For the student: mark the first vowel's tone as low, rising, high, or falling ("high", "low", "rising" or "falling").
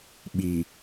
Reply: low